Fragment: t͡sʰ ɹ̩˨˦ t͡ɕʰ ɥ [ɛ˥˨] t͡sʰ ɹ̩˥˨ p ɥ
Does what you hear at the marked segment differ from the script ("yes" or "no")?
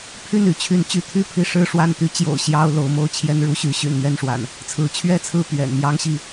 no